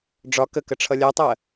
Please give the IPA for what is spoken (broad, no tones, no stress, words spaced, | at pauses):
ɖ͡ʐɒ kəkə ʈ͡ʂʰʌlʲɛtˤɜ